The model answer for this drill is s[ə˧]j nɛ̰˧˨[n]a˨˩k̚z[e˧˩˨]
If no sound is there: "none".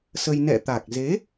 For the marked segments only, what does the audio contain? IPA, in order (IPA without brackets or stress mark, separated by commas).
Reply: ə˧, t̪, e˨˦